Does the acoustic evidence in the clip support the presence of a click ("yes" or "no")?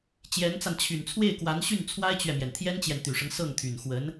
no